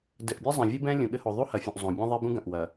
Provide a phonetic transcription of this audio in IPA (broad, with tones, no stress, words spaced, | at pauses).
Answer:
dɘ˨ʔbʲɐ˦zˤɐ̃˨ vʲɨ˦bɛ̃˦ lʲũ˨ɠɘ˦ho˨ ðˤu˦hɐ˨fʲũ˨ʔ zˤõ˨bʲẽ˦ ðˤe˦bũ˦ ɡɐ̃˨ʔ wɐ˨